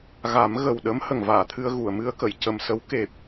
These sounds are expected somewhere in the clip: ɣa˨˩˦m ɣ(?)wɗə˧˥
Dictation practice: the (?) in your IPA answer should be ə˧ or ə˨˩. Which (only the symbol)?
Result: ə˨˩